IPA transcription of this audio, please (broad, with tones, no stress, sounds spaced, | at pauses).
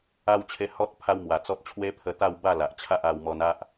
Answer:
a˧ w t͡ɕʰ e˧ h ɔ˦ t̚ pʰ a˦ w m w a˨˩ t͡s ɔ˦ t̚ t͡ɕʰ w e˦ pʰ ə˧ t̪ a˥˧ w b a˥˧ l a˨ ʔ t͡ɕʰ a˦ ʔ a˧ w m ɔ˧ n a˦ ʔ